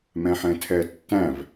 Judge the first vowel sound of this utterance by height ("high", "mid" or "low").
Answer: mid